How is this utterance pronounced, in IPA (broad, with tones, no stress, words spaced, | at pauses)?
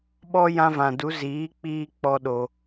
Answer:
ɓɔ˦ jã˦vã˨ du˨˦ ziː˨˦k͡piː˧ k͡pɔ˧ ɗo˧